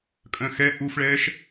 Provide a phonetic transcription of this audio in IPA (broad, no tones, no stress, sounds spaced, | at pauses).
kʼ œ̃ x ɛ ʔ u f ɭ ɛː ʃ